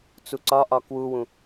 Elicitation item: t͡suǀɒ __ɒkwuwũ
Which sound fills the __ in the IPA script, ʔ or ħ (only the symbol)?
ʔ